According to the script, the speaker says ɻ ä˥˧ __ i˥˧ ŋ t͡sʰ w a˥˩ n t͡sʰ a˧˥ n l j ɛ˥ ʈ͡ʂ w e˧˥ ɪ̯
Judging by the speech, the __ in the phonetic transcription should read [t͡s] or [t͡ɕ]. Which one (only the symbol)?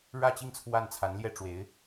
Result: t͡ɕ